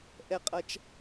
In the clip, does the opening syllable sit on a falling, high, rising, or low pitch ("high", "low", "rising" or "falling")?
high